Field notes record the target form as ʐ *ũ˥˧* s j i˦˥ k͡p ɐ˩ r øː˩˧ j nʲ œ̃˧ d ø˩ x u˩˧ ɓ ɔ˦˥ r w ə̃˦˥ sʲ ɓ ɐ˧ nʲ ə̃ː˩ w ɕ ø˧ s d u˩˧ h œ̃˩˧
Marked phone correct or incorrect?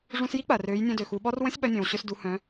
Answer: incorrect